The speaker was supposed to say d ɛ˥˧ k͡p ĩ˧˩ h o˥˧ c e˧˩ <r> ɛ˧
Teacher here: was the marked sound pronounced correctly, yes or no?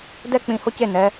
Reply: no